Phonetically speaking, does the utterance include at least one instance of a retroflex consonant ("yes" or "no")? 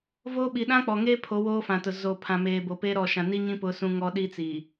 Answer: no